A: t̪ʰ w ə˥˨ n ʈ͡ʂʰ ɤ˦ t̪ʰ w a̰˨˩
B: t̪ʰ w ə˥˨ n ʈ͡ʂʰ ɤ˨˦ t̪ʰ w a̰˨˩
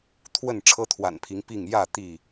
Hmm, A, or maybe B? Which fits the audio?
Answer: A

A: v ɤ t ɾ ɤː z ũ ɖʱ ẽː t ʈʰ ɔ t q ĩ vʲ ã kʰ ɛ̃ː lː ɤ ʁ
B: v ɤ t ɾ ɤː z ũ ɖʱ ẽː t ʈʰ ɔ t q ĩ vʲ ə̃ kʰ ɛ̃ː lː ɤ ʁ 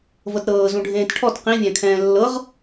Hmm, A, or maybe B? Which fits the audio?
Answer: A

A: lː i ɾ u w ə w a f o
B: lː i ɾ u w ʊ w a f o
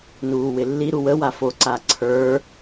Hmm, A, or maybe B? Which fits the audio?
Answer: A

